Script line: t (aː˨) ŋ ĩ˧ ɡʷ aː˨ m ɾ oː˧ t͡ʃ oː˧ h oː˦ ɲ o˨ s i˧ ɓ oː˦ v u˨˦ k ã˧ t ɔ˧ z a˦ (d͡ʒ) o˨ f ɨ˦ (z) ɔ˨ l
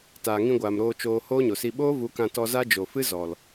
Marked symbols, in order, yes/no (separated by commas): yes, yes, yes